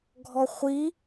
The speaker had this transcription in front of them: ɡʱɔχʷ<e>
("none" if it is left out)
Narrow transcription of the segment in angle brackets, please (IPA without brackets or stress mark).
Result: i